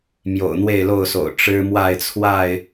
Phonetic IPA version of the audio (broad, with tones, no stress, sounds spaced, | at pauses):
m j o̰˨˩ ʊ̯ n̪ w e˥˨ ɪ̯ l o˥˨ ʊ̯ s o̰˨˩ ʊ̯ ʈ͡ʂ ɻ̩˦ m w a˥˨ ɪ̯ t͡sʰ w a˥˨ ɪ̯